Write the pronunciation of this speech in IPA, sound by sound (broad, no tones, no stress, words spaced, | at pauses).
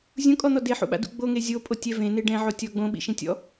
zʲũkʼɔn̪ɔ deħṵɓa̰dṵ ɡ͡boŋe zʲopʼotʲɛ vẽne ɖɛ̃ʕotʲɔ ɡ͡bõɓḭʃĩtʲɔ̰